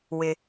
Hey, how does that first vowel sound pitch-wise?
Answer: low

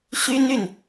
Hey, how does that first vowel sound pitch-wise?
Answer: high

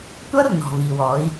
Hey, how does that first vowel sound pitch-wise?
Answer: high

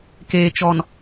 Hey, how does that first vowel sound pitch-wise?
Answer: low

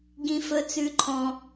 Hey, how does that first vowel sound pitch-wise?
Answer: high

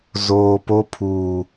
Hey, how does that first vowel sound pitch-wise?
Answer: low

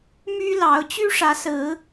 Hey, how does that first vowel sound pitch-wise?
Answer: high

